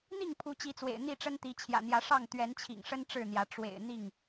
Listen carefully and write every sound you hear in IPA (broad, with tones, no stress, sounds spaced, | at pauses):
n̪ i˥˨ ŋ pʰ u˨˦ t͡ɕ i˨˦ t͡s w ḛ˨˩ ɪ̯ n̪ i˥˨ ʈ͡ʂ ə˦ n t̪ i˨˦ t͡ɕʰ j ä̰˨˩ n̪ j ä˨˦ ʂ ɑ˥˨ ŋ t̪ ɥ ɛ˨˦ n t͡ɕʰ ḭ˨˩ ŋ ʂ ə˦ n ʈ͡ʂ ɻ̩˥˨ n̪ j ä˨˦ ʈ͡ʂ w ḛ˨˩ ɪ̯ n̪ i˥˨ ŋ